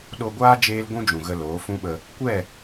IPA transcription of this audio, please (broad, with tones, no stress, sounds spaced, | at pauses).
ɗ o˧ ɡʷ aː˦ d͡ʒ eː˦ l ɡʷ ũ˦ d͡ʒ ũ˨ ɣ ə˧ l oː˨˦ f ũ˦ ɓ ə˧ | kʷ ɛ˦˨